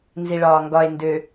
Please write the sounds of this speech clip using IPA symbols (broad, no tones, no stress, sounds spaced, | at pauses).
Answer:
n z i ɭ ɒː ŋ ɡ ɒ e̯ n d ø